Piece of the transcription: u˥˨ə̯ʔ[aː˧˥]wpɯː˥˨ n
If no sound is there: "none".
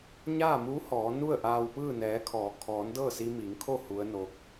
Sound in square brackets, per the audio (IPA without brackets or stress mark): aː˧